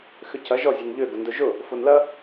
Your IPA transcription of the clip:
x ʏ c ɐ ʒ ɔ zʲ e n ʎ ø ɡ ʊ n d ʊ ʒ ʊ | f o n l ɐ

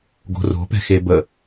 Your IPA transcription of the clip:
ɡ o̤ r o̤ p ɛ̤ x e b ə

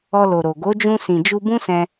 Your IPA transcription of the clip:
ɔ˧ l o˨ ɾ o˨ ɡ o˨˦ d͡ʒ ũ˧ s ĩ˨ d͡ʒ u˧ b ũ˦ s ɛ̃˧

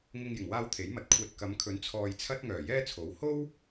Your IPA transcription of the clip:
ŋ ɪ˧ ŋ j ɪ˨˩ ŋ w aː˧ w t̪ʰ e˨˥ j m ɐ˨ t̚ kʷʰ ɛː˧ t̚ k ɐ˨˧ m kʰ ɵ˨˥ n t͡sʰ ɔː˧ j t͡sʰ ɐ˥ t̚ ŋ œː˨˩ j ɛː˥ t͡sʰ o˨˥ w h o˥ w

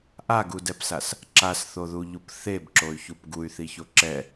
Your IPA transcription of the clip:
ʔ a ɡ u d ɛ p s a s | ǁ a s θ o ð u ʎ u p θ e b ǁ o y̯ ç u p ɡ u y̯ θ i ç o ǁ ɛ

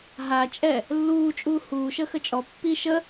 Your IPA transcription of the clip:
ɦ a t͡ʃʼ ɛ | lː uː t͡ʃʼ uː h uː ʃ ə x ə t͡ʃʼ ɔ pː i ʃ ə

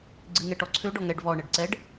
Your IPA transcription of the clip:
ɡ͡ǀ ɨ ŋ ɛ ʈ ɔ ǀʰ ø ɖ ɔ ŋ ɛ ɖ v ɔ ɳ ɛ ɖ ǀ ɛ ɖ

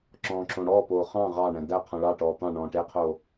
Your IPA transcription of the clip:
ǁ ɔ̃ː ǁ õ ɽ ɔː p oː χ ɑ̃ ʁ ɑ ɳ æ̃ d æ qʰ ɔ̃ ɭ ɑ ʈ ɔː t̪ ɑ̃ ɳ ɔ̃ː ʈ e qʰ oː

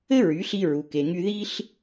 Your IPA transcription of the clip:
ɘ˥ ɹ y˩˥ ɬ i˧ ɹ u˩ k e˩ ŋ y˧ ð i˥ ɬ

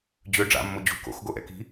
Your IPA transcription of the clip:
d͡ʑ ø ɖ͡ʐ a̰ mː o d͡ʑ ṳ k o̰ x ɡ o ʔ ɛ̰ k i̤

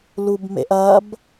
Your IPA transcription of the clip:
l u b m ḛ ʔ ɐ b

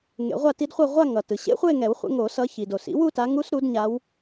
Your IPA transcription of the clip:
ŋ ḛ˨˩˦ ʁʷ a˥˧ t i˦˥ d χʷ ʌ˥˧ ʁʷ a˥˧ ŋ ʌ˩ t ɯ˩ ɕ ḛ˦˥ χʷ e˥˧ ŋ ɛ˨˩˦ w χʷ ḛ˨˦ ŋ o˨˩˦ s ʌ˨˦ ç i˩ d o˩ s ḭ˦˥ w u˥˧ t a˨˦ ŋ u˦˥ s ɾ u˨˦ d ɲ a˨˦ w

